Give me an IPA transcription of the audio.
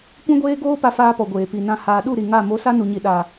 kʷ ɛ̃˦ ɡʷ eː˦ ɡ oː˦ p a˦ f aː˦ p ɔ˨ ɡʷ eː˨ p i˨ n ã˧ h aː˨ ɗ u˦˨ ɾ i˨ ŋ a˦˨ m o˨˦ s a˦ n u˨ ɲ i˨ ɗ a˨

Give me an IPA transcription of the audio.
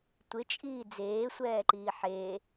tʷ ɪ t͡ʃʼ iː d͡z eː sʷ ɛː ǃ iː ħ eː

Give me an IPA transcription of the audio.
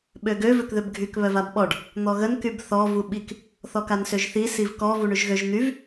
ɓ ø ɡ ø v ø k ð ø b ɡʱ y k β œ v a b ɓ ɔ ɖ | n̪ ɔ ɣ ə n k y b θ ɔ v u ɓ i k | θ ɔ k a n s ø ʒ θ i s i v k ɔ v u ɳ y ʒ ɣ ø ʒ n̪ y v

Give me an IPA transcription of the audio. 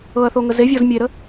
ɤ ɐ̯ θ o ŋ ə z e vʲ ɔ z mʲ e ɾ ə

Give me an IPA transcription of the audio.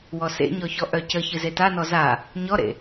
w ɔ s ḛ ɲ ɔ ç ɔ ʔ œ c ə ç ɨ z e t a n ɔ z a | ɲ ɔ ɾ ḛ

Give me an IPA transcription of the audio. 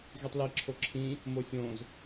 ɣ i tˤ l i ǁʰ o ǁʰ ĩ | m o sʲ õ z

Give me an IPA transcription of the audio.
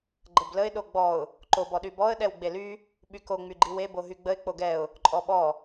ɡ͡ǃ ə b l ə ɪ̯ ɗ o ɡ͡b ɔ ʊ̯ | ǃ o b ɔ ɗ y b ɔ ə̯ ɗ ɛ w ɡ͡b e l y | ɓ y k o ŋ͡m y ɡ͡ǃ i w e b o ɦ y ɡ͡b ə ɪ̯ k͡p o ɡ ɛ ʊ̯ | ǃʼ ɔ ɓ ɔ

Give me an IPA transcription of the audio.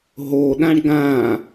ɦ o ɗ ã ɳ ɡ ã

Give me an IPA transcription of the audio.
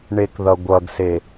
ɳ e k ð ʌ ɡʷ ʌ ɡ s e

